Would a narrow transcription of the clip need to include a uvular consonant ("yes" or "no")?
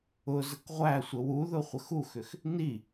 yes